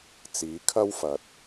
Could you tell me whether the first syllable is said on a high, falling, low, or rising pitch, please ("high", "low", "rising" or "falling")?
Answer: rising